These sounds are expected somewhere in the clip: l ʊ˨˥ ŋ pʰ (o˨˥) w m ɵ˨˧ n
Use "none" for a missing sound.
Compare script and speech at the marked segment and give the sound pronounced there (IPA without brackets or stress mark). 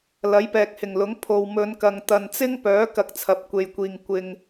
o˨